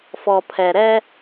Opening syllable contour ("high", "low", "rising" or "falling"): low